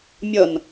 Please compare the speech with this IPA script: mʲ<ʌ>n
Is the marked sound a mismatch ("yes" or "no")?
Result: no